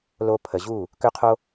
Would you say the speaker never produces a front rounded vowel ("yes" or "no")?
no